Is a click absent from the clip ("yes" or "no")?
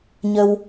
yes